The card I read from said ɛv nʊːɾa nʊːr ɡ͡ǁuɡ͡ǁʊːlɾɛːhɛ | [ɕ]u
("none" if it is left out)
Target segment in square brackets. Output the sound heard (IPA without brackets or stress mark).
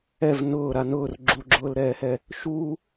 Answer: ʃ